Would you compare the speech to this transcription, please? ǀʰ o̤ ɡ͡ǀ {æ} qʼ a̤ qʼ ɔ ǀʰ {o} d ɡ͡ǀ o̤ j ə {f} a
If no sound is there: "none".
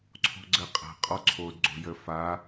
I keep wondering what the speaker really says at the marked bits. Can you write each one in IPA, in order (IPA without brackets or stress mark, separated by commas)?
ə, o, f